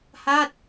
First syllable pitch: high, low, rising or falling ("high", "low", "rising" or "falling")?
falling